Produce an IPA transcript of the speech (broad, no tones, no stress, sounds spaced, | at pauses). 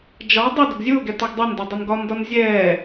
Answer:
d͡ʒ ɒ dˤ ə d ʊ ɡ zʲ ʊː ɡ ɛ t a ɡ dˤ ɛ n d o dˤ ʊ n ɡ ɒ n d ɒ n zʲ ɛː